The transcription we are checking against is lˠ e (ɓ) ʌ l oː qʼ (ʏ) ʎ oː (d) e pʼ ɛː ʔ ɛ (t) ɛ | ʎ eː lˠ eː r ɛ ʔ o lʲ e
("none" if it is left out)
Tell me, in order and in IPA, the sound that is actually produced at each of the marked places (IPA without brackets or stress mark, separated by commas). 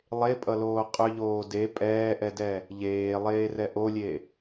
pʼ, ʏ, d, d